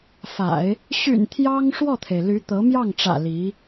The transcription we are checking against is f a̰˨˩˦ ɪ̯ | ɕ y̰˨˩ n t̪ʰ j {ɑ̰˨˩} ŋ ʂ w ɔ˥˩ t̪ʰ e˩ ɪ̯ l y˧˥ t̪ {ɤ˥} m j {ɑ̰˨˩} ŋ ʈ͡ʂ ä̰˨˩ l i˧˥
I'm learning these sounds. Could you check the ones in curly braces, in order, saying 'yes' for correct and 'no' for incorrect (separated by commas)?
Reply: no, no, no